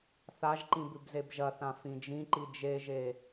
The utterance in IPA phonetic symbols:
θaʒǃĩ bʉbzebʒɐθã fĩd͡ʒĩǃi d͡ʒeʒe

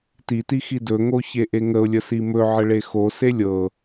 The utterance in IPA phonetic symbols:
titi xidɵŋo çeʔeŋəʊ̯lʲə simɵʕə ɭexose lʲɤ

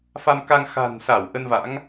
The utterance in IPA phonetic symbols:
fa˧mka˧ŋ xa̤˨˩nsa˧˩w ʔə˧nva̰˧˥ŋ

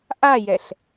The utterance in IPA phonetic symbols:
ʔajɛɬ

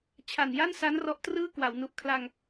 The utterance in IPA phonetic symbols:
t͡ɕʰa˨˩nja˥˩nsa˦˥n rɔ˦˥ʔtrɯː˥˩ kwa˩˦wnu˨˩ʔ kʰla˧ŋ

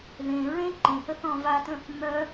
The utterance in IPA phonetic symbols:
ðẽ ɹẽ ǃẽhə θɔ̃vatə̃ | mœ

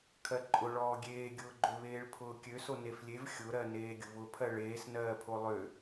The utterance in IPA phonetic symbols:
kʰɜǃʼʊɭɔː ɡʲeːɡʲʊːɡ͡ǃø βeːɭpʰʊːkʲøso neflʲev xʲʊɾɜ neːɡʲʊβʊpʰɜ ɭeːs nɜːpʰolˠø

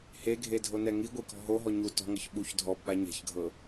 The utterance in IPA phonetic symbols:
heɡʱedʱonɛ ŋiɡʷikɔ̤ ɦoɦɔ ɲu tɔ̤ŋɤç ɓuç dʱɔbɓa ɲɛ̤çɡʱɤ

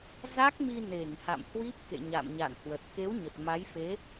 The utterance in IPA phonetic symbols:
za˦˥k̚mi˧ ne˧˩ŋha̰˧˨mhwi˦˥p̚ kḛ˧˨ɲa̰˧˨mɲa̰˧˨nhwə˨˩t̚ ke˨˦w ɲə˨˩t̚ma˨˦jfe˨˦

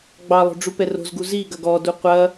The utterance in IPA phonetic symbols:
ɡ͡bɑlˠo̤ɖ͡ʐu pɛro̤zɡu ziɡɐɡ ɔdu qʷɐ

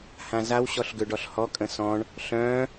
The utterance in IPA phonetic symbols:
hãzaw ɕɔɬɡøɖɔɬhɔ kʼə̃sɔ̃ɳ | ɬœ̃

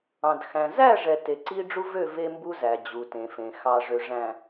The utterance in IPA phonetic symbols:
ɑ̃˨d xæ̃˨ zæ˦˨ʐɛ˨ te˨ǀi˦ ɖ͡ʐu˦vø˦˨ ve˦mbu˦zæ˨ d͡ʑu˨tẽ˨fẽ˨ xɑ˨ʐø˨ʐæ̃˨

